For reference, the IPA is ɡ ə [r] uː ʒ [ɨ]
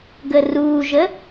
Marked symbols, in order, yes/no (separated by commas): yes, no